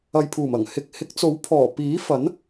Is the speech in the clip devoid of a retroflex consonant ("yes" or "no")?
yes